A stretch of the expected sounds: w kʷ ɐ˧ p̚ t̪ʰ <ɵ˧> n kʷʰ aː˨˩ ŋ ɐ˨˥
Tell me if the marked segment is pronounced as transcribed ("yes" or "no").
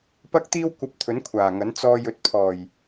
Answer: no